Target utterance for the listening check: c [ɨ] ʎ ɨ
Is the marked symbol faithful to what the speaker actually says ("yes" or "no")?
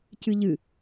yes